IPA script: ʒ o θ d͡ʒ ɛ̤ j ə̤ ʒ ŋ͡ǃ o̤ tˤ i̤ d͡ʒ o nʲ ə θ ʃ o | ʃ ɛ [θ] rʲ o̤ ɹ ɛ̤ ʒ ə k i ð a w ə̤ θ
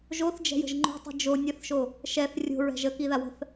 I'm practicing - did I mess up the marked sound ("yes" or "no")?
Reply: no